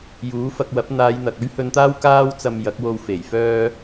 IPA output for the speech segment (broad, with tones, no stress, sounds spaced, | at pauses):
j uː˨˥ f ɐ˧ k̚ w ɐ˨˥ p̚ n̪ aː˨˧ j n̪ ɐ˨ k̚ ɵ˥ ɥ h ɵ˧ n t̪ aː˥ w k aː˥ w t͡s ɐ˧ m j ɐ˨˥ k̚ w o˧ w f e˨˩ j f œː˥